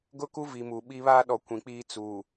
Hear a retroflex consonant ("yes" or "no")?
no